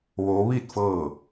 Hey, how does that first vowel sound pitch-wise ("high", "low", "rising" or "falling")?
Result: rising